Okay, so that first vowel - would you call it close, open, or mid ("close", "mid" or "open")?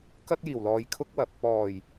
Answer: open